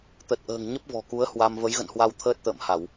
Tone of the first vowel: low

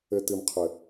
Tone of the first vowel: low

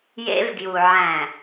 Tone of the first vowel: high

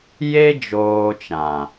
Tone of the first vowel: high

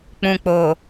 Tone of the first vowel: low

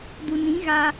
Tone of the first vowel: low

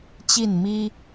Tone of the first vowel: falling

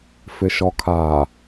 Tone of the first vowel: low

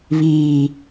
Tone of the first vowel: low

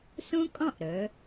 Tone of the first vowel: high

